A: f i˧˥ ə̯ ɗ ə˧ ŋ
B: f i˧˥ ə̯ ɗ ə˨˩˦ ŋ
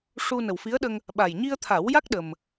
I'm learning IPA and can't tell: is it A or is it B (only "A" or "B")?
A